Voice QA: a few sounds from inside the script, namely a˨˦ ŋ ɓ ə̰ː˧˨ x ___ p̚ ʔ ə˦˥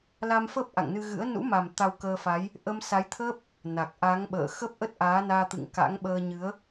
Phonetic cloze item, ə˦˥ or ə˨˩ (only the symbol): ə˦˥